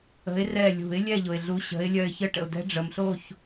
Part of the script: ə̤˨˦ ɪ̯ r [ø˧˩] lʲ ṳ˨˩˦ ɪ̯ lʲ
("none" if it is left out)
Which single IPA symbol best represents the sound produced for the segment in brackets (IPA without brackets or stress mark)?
ɛ˧˩